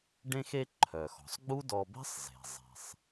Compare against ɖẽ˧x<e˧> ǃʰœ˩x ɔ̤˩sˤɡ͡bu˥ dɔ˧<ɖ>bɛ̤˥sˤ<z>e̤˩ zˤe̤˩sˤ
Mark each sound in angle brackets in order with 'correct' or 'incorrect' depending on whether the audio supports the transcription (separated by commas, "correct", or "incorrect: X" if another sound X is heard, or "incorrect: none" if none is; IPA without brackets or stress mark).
correct, incorrect: none, correct